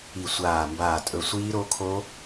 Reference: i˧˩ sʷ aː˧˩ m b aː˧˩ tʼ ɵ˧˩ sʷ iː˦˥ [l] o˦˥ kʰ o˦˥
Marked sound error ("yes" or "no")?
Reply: yes